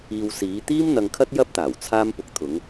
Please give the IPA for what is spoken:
iː˧ w s iː˨˧ t̪ iː˥ m n̪ ɐ˧ ŋ kʰ ɐ˥ t̚ j ɐ˥ p̚ t̪ aː˨˩ w t͡sʰ aː˥ m p ʊ˨˥ k̚ t̪ʰ ʊ˨˧ ŋ

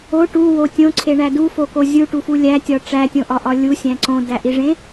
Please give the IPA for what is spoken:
o ʈ u w o tʲ õ ǀʰ e ɳ æ d u f o k o zʲ u ʈ u f u lʲ æ tʲ ɒ ʈ͡ʂ æ tʲ õ ʔ ɒ ʔ ɒ lʲ u sʲ æ̃ ǀ õ d æ ʔ i ʐ ẽ

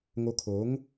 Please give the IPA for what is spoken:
ŋ o˧ kʰ o˨˦ ŋ

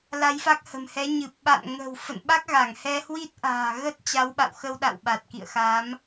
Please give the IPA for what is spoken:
l a˧ j f a˦˥ k̚ h ə̤˨˩ m h ɛ˨˦ ɲ ɨ˨˩ p̚ ɓ a̰˧˨ n ŋ ə̤˨˩ w f ə̰˧˨ n ɓ a˦˥ k̚ ɣ a˧˩ ŋ h ɛ˧ h w i˦˥ t̚ ʔ a̤ː˨˩ ɣ ə˦˥ t̚ t͡ɕ a˨˦ w ɓ a̰˧˨ w x ə˧ w ɗ a̰˧˨ w ɓ a˨˩ t̚ k ḭ˧˨ ə̯ x a˨˦ m

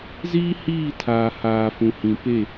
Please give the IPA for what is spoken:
z iː˦ h iː˦˨ tʰ aː˨ h aː˨ f ũ˨ h ĩ˨ p e˦˨

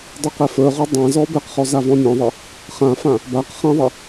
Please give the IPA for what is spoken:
dˤ i q ɛ f ə˞ ʁ o dˤ ã z ɔ b ɛ q χ ɔ z a v ɔ̃ nʲ ɔ̃ ðˤ e | χ ã f ã | b a q χ ã ðˤ ɛ

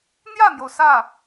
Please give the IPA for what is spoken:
n̪ j ä˥˩ n̪ j o˩ ʊ̯ s ä˥˩

